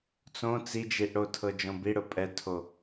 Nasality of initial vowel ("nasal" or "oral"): nasal